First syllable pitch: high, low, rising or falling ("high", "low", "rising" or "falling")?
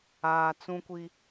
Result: low